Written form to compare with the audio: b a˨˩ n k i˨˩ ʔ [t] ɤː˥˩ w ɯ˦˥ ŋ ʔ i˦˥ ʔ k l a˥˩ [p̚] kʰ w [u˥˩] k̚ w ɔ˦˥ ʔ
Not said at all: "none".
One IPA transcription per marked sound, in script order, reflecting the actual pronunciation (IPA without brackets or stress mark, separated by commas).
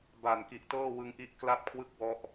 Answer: t, p̚, ɯ˥˩